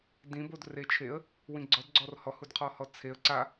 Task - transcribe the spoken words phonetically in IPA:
d ĩ b o d r e t͡ʃʰ e ə̯ | w ĩ ɡ͡ǀ ɔ d ɡ͡ǀ ɔ r h ɔ h u d qʰ ɔ h ɔ t͡sʰ e ə̯ ǀ a

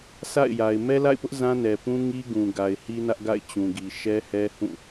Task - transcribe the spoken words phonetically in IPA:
s a̰˦˨ ɪ̯ j a˨ ɪ̯ m ɛ˦ l a̰˦˨ ɪ̯ p ʊ˦ ʔ z ã˦ n ɛ˨ p ũ˦ ŋ i˦ ɡ ũ˨ ɡ a˨ ɪ̯ h i˦ n ä˦ ʔ ɡ a̰˦˨ ɪ̯ t͡ɕ ũ˨ ɡ i˨ ʃ ɛ˦ h ɛ˦ h ũ˦˨

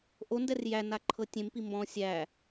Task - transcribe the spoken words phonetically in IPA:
ʔ o n d ɛ r j æ n a ǃʰ ɤ tʲ ẽ m p i m b ɔ̃ sʲ æ

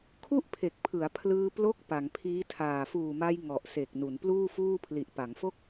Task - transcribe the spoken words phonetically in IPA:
kʰ u˥˩ ʔ pʰ e˨˩ k̚ pʰ ɯ˩˦ a̯ pʰ l ɯː˧ p l o˦˥ k̚ p a˩˦ ŋ pʰ iː˦˥ tʰ aː˨˩ f uː˨˩ m a˧ j ŋ ɔ˨˩ ʔ s e˨˩ k̚ n u˩˦ n p l uː˥˩ f uː˥˩ pʰ l i˨˩ ʔ p a˩˦ ŋ f o˥˩ k̚

